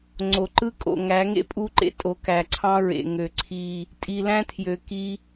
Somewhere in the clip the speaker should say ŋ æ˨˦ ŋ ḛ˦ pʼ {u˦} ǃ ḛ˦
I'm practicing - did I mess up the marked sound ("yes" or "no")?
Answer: no